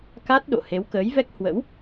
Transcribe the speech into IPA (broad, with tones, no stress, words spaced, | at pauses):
ka˦˥t̚ɗo̰˧˨ he˨˦wkəː˨˦jvɛ˦˥k̚ hwə̰˧˥w